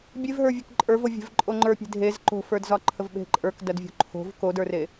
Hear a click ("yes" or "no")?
yes